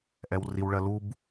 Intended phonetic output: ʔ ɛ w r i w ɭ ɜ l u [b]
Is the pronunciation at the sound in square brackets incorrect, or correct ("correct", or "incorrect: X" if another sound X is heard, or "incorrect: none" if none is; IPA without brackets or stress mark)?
correct